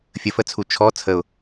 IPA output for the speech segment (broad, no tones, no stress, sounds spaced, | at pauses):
fʲ ə f ə t͡sʰ u t͡ʃʰ ɔ t͡sʰ ə ʊ̯